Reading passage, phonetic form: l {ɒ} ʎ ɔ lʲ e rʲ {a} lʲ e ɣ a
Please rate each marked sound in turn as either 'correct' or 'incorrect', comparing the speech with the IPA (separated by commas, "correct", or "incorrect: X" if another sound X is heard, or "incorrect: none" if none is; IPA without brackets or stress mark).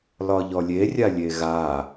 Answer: correct, correct